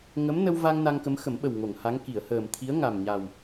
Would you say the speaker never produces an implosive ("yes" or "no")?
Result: no